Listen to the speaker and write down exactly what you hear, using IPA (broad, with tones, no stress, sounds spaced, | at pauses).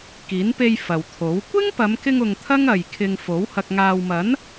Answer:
k iː˨˥ n p e˧ j f ɐ˨ w t̪ʰ o˨˥ w kʷ ɪ˥ ŋ p ɐ˨˧ m k ɪ˧ ŋ ʊ˨ ŋ t̪ʰ ɐ˥ ŋ ɐ˨ j kʰ ɪ˧ ŋ f o˨˥ w h ɐ˧ k̚ ŋ aː˧ w m ɐ˨˥ n